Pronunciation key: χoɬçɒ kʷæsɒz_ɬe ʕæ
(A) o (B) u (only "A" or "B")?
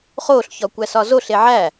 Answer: A